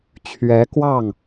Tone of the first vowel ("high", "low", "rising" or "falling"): rising